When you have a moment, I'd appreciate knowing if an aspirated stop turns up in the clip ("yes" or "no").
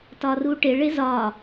no